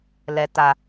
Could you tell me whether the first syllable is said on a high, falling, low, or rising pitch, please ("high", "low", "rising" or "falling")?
low